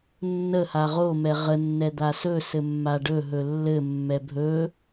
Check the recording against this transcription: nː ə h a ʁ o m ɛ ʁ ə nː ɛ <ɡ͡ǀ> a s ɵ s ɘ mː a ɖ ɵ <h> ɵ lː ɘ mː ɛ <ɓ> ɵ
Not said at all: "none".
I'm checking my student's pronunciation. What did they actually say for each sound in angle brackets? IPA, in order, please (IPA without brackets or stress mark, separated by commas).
d̪, ɦ, bʱ